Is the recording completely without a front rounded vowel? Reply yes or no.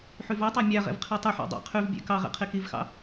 no